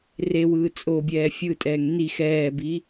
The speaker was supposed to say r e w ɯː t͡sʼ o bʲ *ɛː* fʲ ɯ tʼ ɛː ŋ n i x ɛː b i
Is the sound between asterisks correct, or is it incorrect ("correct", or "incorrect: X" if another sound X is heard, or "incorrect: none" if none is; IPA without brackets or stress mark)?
correct